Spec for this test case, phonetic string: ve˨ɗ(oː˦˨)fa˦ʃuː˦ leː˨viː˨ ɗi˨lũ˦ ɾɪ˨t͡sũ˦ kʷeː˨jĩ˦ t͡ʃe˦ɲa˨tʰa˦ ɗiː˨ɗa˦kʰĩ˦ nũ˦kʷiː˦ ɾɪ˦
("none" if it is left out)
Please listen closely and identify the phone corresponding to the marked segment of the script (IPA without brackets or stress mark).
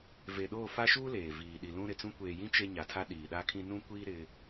oː˦˨